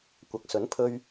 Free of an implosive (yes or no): yes